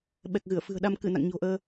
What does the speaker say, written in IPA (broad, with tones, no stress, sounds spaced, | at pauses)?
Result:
ɓ ɛ˨˩ k̚ ɣ ɨ˧˩ ə̯ f ɨ̤˨˩ ə̯ ɗ a˧ m k ɨ˧˩ n a̰˧˨ ŋ ɲ o̤˨˩ ʔ əː˧